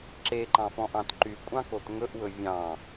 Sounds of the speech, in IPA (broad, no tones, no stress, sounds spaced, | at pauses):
ǁ e ǃ ɑ̃ f ɔ̃ ʔ ɑ̃ t ǃ y kʷʼ ɑ̃ k o t ŋ ɵ ʔ w ɵ vʲ ɑ̃